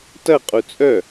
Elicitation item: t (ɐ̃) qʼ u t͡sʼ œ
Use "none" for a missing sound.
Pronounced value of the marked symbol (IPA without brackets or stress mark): ɐ